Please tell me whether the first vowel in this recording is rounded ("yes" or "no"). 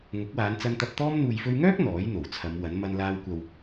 yes